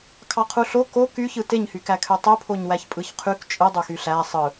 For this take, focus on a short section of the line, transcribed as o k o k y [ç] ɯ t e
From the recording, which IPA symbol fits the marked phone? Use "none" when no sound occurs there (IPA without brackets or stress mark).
ç